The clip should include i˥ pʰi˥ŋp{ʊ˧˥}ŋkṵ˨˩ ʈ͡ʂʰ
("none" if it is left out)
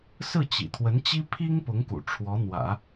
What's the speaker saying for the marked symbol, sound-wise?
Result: ʊ˧˥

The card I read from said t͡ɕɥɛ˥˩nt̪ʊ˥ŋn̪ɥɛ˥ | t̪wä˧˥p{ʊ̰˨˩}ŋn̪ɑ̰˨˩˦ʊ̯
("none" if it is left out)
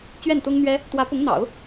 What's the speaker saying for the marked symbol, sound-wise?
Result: ʊ˧˥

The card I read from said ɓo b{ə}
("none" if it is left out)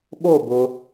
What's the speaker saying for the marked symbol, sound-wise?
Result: ʊ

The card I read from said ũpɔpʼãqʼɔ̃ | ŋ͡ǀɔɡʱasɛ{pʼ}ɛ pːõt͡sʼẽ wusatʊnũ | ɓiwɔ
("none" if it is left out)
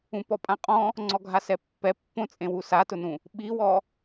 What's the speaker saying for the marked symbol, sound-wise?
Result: pː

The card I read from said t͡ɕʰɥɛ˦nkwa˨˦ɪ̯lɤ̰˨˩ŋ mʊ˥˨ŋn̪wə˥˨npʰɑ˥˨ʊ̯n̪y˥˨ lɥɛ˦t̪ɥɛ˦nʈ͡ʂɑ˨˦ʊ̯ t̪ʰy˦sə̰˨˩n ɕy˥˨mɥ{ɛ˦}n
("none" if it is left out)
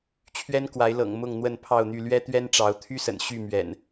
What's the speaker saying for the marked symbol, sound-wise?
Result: ɛ̰˨˩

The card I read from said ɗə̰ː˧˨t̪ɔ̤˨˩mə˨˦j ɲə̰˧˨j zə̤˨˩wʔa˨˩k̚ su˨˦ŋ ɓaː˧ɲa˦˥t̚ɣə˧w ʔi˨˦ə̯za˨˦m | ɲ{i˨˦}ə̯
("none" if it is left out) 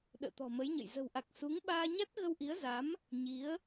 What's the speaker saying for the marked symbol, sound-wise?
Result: i˨˦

